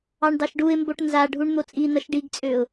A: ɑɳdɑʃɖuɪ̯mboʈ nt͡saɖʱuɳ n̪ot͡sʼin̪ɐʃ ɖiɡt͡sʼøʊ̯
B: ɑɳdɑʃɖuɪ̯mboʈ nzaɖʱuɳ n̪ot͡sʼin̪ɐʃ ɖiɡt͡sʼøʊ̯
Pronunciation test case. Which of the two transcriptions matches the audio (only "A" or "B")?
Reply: B